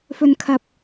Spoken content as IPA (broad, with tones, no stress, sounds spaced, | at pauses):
f ɵ˨ n kʰ ɐ˨ p̚